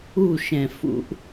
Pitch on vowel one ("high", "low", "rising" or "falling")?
falling